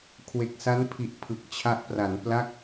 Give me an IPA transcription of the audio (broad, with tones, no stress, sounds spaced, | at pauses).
kʰ w e˨˩ k̚ s a˦˥ n pʰ i˨˩ ʔ pʰ ɯ˨˩ k̚ t͡ɕʰ a˦˥ ʔ p r a˩˦ n p l a˥˩ k̚